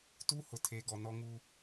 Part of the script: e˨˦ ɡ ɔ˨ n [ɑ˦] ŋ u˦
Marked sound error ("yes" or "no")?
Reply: yes